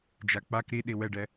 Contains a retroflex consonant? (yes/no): yes